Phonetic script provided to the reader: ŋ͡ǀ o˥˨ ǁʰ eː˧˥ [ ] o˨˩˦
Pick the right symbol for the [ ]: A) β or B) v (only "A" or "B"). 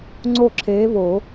A